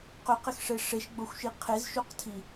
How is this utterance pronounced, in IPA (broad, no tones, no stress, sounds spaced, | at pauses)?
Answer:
q ʏ q ɪ x ʂ e ʂ e ʃ ɡ͡b o xʷ ʃ i qʰ e z ʃ u q tʰ i